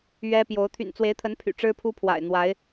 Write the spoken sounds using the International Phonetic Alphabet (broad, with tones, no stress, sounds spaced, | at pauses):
ɥ ɛ˦ p j o˨˦ ʊ̯ t̪ʰ y̰˨˩ n t͡s w e˨˦ ɪ̯ t̪ʰ ə˨˦ n pʰ y̰˨˩ ʈ͡ʂ ɻ̩˦ pʰ u˦ pʰ w a̰˨˩ ɪ̯ n̪ w a˨˦ ɪ̯